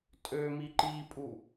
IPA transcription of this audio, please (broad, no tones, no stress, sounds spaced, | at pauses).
tʼ ø m i ǃ i pʼ u